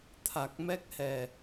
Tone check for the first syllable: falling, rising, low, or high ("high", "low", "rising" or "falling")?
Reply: low